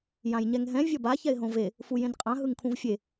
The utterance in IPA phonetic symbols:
j ã j ɲ ɛ ŋ ɦ ɛ̃ vʲ ʌ b a ç ɛ ɪ̯ ɦ õ v e | f u j ẽ n qʼ ã ɦ ɯ ŋ kʰ ũ v fʲ e

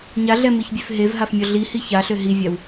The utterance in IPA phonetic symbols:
ɲ a ɮ ɛ m i ç bʲ ø f ɦ e v ɦ a f mʲ ɔ ɮ i h i ç a ɬ ø ɦ i vʲ a w

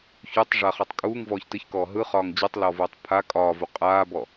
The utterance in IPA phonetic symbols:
ç u tˤ ʐ a χ ɔ tˤ kʼ uː ŋ v ɔː ç t ɨ ç k ɔː ɦ ɯ χ ɒː ŋ d͡ʑ ɯ tˤ l ɔ v uː tˤ pʰ a kʼ ɒː v u qʼ aː b ɔ

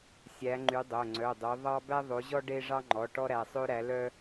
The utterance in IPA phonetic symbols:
sʲ æ˨˦ ŋ͡ǃ y˨˦ dˤ o˩˧˩ ŋ͡ǀ œ˩˧˩ dˤ ø˨˦ ðˤ ɑ˦ b æ˦ ðˤ o˨˦ ʑ ɔ˦ ɖ e˦ ʐ ɑ˦ ŋ͡ǃ ɔ˩˧˩ ʈ ɔ˦ ɾ æ˩˧˩ sˤ ø˦ ɾ æ˨˦ l œ˦

